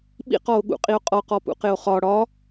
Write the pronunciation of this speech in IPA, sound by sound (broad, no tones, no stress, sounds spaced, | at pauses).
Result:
ɓ ḭ q ɔ o̯ ɠ ṵ qʼ i o̯ qʼ ɔ q ɔ p ṵ q ɪ o̯ χ ɒ ɽ ɒ